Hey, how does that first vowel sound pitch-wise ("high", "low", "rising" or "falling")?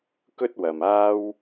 high